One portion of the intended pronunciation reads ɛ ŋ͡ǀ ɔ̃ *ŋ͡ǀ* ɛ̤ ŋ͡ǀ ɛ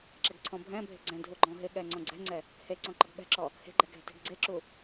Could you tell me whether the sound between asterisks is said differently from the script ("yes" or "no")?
yes